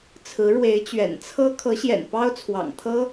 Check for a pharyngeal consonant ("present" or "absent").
absent